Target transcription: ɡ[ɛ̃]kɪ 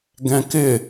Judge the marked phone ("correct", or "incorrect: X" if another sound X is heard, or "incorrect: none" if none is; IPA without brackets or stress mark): correct